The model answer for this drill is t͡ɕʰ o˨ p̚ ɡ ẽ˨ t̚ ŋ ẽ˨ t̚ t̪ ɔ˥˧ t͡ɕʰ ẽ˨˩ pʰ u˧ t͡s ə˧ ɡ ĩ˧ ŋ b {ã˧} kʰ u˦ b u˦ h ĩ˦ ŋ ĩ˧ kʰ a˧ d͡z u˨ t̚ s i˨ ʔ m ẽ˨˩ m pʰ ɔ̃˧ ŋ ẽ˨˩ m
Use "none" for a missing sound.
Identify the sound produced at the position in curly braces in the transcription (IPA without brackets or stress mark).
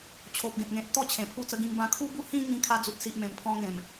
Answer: ã˧